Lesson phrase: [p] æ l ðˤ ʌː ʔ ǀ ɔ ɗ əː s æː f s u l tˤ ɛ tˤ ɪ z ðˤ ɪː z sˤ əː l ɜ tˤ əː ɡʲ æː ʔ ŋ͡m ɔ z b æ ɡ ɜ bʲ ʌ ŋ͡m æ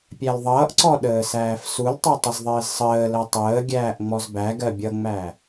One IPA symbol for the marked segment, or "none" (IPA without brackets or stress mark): pʲ